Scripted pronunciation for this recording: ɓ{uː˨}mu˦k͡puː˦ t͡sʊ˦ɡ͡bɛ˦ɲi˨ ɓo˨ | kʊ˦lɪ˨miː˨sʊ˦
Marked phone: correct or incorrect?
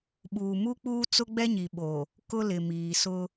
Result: correct